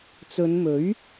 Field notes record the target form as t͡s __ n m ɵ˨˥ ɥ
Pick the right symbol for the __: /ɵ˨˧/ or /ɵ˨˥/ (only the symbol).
ɵ˨˧